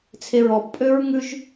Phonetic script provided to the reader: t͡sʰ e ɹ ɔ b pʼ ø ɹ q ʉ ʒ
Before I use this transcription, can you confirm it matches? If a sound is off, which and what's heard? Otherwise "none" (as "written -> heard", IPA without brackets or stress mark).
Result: q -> ŋ